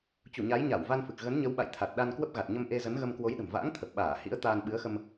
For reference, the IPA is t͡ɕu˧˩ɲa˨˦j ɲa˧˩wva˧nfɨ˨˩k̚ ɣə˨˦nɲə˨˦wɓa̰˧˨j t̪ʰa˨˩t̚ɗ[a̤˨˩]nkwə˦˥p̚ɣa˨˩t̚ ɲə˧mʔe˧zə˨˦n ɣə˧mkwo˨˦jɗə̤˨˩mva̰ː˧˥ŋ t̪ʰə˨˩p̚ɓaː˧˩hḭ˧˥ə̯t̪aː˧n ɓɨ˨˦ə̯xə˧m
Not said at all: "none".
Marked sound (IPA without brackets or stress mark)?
a˧